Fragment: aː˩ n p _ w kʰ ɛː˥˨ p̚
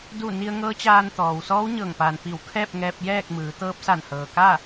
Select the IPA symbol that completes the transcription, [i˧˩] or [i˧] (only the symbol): i˧˩